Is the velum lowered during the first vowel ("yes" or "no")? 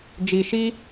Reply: no